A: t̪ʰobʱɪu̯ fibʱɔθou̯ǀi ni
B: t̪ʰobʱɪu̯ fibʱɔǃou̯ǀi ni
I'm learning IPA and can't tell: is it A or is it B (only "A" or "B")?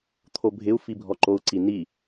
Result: B